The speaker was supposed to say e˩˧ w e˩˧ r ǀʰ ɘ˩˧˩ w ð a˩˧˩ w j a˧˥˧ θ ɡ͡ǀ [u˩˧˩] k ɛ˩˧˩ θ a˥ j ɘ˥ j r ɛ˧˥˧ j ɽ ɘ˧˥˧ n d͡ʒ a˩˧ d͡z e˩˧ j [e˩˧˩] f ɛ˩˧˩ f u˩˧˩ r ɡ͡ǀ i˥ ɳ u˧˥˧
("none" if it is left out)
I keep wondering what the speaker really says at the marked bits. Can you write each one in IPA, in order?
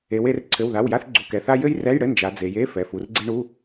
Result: u˩˧˩, e˧˥˧

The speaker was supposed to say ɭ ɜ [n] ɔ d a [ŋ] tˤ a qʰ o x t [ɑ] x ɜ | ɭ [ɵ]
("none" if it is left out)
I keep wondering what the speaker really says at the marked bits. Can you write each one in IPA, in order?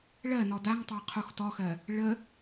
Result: n, ŋ, ɔ, ə

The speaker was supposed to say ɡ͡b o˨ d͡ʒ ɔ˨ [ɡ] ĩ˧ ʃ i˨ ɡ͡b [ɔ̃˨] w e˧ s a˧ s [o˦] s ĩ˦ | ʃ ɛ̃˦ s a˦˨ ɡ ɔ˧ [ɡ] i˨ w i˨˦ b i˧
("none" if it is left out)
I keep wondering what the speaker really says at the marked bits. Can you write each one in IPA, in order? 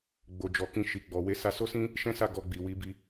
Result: k, ɔ˨, o˦, ɡ͡b

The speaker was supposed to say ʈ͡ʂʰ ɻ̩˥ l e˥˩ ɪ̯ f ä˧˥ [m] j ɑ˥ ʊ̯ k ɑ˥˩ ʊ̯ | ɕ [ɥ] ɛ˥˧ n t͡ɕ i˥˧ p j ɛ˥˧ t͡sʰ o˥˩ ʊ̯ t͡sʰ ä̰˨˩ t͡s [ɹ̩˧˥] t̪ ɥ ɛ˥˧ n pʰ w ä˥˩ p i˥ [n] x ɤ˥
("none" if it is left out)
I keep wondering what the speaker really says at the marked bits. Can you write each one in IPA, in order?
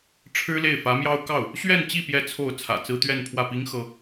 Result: m, ɥ, ɹ̩˥, ŋ

